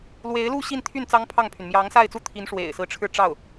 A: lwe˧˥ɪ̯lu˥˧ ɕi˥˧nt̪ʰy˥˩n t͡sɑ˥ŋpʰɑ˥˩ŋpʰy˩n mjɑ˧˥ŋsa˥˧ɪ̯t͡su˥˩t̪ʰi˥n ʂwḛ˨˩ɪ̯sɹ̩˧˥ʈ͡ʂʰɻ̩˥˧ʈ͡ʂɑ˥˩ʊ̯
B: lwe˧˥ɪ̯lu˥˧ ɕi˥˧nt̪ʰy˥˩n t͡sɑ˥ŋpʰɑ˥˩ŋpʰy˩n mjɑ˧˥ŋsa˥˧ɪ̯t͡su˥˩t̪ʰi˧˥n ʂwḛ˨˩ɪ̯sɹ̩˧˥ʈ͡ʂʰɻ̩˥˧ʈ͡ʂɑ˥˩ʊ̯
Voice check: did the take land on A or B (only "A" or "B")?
B